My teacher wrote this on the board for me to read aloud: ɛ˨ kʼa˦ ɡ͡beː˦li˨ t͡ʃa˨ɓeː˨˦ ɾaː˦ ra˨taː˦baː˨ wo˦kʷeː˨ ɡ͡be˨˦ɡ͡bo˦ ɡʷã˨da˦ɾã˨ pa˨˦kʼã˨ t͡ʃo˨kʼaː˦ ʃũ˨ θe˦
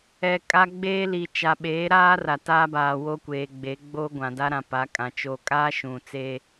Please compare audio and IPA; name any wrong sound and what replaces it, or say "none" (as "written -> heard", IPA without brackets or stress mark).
θ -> t͡s